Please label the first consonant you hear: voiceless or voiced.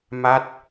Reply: voiced